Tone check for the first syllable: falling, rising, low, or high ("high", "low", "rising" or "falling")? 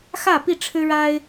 falling